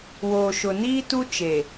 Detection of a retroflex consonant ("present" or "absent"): absent